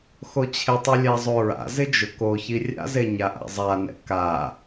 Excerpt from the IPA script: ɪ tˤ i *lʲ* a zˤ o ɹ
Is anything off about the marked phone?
no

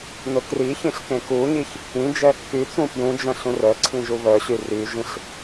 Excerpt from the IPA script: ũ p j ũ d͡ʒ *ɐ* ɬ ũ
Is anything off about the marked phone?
yes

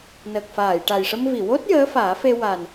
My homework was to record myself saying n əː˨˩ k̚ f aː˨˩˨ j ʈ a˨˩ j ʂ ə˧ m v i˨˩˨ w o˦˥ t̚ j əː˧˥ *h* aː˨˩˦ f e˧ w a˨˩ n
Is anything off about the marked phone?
yes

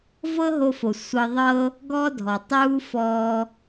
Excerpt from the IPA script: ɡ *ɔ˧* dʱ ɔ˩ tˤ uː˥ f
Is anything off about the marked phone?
yes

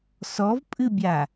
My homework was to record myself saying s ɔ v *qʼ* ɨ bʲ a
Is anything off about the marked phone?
yes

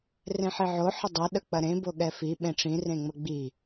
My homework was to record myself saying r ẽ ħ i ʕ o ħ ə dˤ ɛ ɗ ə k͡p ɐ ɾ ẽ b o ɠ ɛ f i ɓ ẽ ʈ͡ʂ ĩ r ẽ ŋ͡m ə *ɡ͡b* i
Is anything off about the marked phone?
no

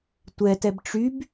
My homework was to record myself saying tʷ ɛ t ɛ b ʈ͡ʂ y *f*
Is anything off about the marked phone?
yes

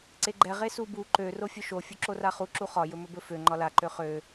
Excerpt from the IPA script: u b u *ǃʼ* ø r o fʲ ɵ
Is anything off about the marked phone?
yes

